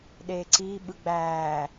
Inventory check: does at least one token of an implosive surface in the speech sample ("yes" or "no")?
yes